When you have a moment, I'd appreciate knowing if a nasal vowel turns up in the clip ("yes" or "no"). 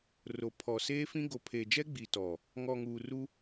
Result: yes